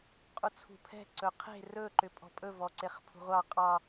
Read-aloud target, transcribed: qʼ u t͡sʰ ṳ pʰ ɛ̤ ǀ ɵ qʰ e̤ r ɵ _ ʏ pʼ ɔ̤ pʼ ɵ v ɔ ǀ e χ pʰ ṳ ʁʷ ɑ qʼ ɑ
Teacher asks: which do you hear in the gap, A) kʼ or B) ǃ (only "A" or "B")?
B